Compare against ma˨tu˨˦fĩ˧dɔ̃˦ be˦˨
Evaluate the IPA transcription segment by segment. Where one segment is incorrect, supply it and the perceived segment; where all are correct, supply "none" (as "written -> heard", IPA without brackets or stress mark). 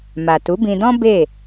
f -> b